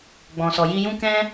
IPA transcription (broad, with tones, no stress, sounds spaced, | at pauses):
ɡ͡b ɔ̃˨ s ɔ˨ j i˧ j ũ˦ k ɛ̃˦